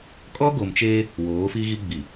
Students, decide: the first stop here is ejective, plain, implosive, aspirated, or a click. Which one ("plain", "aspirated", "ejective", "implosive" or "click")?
ejective